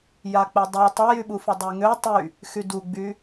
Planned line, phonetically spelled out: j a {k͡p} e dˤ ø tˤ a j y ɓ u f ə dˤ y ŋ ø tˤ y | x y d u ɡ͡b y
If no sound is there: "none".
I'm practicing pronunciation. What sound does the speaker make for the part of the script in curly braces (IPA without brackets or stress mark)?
k͡p